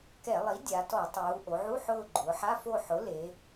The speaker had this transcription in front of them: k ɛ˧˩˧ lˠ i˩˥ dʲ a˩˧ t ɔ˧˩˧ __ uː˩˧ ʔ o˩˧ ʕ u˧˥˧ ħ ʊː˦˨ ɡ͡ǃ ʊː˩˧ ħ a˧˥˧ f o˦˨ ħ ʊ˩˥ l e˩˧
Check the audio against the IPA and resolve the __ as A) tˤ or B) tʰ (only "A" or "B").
A